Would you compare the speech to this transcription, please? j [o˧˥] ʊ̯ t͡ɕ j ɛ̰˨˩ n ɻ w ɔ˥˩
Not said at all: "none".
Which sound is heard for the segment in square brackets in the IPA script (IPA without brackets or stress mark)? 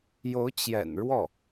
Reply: o˧˥